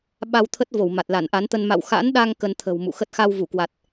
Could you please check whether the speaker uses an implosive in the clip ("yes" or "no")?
yes